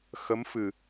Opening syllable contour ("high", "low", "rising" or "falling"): rising